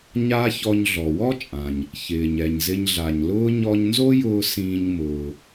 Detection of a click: absent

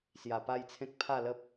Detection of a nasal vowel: present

